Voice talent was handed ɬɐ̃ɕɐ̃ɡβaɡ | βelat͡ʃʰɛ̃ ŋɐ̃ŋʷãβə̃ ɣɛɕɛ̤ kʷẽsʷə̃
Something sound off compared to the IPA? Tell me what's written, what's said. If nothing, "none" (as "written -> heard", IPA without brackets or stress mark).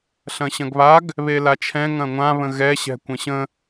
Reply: sʷ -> ɕ